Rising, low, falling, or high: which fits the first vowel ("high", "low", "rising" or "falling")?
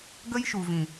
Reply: high